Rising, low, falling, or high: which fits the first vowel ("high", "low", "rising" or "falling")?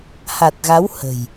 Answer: low